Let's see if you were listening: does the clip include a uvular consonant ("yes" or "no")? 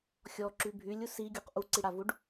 yes